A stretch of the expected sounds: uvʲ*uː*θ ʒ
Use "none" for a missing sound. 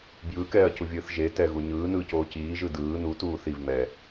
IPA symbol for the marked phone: ɯː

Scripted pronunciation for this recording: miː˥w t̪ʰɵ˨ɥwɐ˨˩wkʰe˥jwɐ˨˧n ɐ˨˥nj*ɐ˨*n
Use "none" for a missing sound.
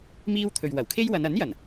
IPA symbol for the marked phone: ɐ˨˩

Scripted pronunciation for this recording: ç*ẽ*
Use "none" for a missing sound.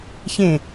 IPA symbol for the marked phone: ẽ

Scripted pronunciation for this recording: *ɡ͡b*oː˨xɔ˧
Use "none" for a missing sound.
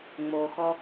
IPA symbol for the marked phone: ŋ͡m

